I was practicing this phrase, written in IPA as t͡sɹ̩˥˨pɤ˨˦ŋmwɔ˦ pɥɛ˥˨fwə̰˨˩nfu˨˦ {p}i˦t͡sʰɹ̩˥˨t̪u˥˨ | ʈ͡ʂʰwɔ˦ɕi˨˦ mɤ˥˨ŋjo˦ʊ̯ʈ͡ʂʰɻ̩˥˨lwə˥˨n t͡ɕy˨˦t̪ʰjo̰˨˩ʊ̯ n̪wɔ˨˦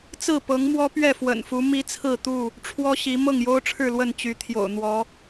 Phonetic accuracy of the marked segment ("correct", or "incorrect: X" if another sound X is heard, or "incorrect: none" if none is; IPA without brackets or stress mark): incorrect: m